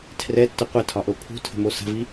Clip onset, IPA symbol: tʰ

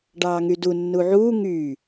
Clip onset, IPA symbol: ɖ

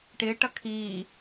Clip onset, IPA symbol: ʈ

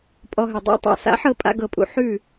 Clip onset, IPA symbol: pʼ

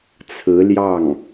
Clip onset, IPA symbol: t͡sʰ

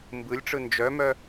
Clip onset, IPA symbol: m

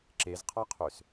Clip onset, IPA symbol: ǁ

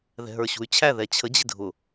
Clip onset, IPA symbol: ð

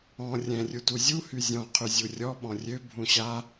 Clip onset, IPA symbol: ɔ̃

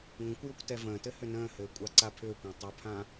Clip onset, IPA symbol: ŋʷ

